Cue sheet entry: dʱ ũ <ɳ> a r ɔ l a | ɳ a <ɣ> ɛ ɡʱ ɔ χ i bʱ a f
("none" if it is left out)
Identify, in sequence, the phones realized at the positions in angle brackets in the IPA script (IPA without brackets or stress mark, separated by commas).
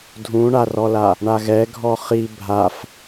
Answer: ɳ, ɣ